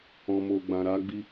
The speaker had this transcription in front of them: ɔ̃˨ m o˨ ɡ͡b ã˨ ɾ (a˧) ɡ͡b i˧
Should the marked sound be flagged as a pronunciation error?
no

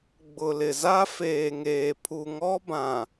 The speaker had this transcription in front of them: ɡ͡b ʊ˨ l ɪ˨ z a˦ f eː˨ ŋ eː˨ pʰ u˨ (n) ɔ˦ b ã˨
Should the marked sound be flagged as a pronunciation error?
yes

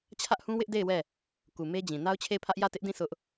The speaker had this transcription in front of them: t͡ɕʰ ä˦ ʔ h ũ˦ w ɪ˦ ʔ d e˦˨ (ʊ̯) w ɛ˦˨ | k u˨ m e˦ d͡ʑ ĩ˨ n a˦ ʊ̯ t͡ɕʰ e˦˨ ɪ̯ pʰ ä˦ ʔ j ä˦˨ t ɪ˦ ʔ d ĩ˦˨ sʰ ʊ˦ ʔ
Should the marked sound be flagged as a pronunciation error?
yes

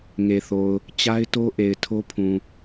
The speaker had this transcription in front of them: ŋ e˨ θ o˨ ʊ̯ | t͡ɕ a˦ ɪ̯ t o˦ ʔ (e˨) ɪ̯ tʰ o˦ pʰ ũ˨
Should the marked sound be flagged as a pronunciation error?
no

